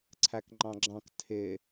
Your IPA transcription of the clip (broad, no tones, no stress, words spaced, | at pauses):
ǀʰækŋ͡ǃɑ̃ɡ͡ǁɑ̃k tʰɪ